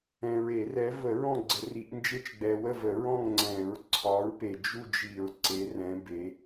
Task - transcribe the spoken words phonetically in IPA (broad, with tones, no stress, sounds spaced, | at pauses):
ɛ̃˨ ɹ e˨˩˦ r ɛ˨˦ v ə˨˩˦ ɹ ɔ̃˦˨ ɡ͡ǀ ə˨˩˦ r i˨˩˦ ʔ n d͡ʒ e˦˨ t͡ʃ ɡ͡b ɛ˨ w ə˦˨ v ə˨˩˦ ɹ ɔ̃˦˨ ŋ ŋ͡ǀ ɛ̃˨˩˦ ɹ ǀʰ ɒ˨˦ ɹ p e˨ d͡ʒ u˦˨ d͡ʒ i˨˩˦ ɹ ǀ e˨˦ r ɛ̃˨˦ b e˨˦